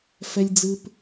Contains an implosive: no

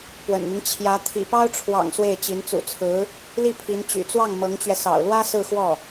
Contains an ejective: no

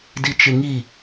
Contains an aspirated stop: no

